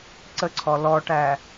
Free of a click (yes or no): no